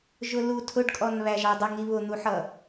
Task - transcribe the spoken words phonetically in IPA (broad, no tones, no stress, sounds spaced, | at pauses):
ʒ ʊ l u tʰ ʊ ɖ kʼ ɔ n β æ ʒ ɑ dˤ ʌ ŋ i β ʊ n̪ u ħ ʌ